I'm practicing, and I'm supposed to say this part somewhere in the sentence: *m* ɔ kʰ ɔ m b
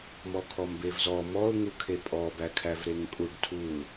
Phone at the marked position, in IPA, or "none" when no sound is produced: m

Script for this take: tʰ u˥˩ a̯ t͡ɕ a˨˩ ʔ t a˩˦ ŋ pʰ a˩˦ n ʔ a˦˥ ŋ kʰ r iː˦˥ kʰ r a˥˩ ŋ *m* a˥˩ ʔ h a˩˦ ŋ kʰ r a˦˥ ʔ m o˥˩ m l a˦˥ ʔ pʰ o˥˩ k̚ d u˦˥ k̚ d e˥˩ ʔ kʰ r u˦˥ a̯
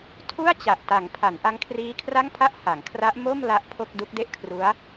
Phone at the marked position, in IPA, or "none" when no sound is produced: pʰ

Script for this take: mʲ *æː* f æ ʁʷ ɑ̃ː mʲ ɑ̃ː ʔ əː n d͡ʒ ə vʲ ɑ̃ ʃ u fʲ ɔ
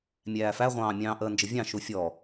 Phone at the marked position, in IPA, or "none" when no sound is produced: æː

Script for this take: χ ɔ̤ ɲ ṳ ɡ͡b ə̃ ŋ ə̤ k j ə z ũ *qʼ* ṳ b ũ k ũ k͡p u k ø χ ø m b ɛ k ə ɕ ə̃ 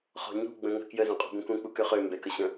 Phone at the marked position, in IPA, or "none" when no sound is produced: qʼ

